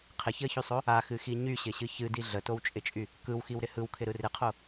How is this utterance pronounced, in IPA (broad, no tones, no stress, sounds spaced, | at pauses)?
qʰ ɪ ç ɪ ə̯ ç y sˤ o | a x ɨ x i ɲ y ɕ ɪ ɕ ɨ ç ɨ d i ɮ ə t o w t͡ʃʼ ɪ t͡ʃʼ y | k ɯ w x i w ɾ ɪ h ɯ w kʰ ɪ ɾ ɯ r ɪ qʰ o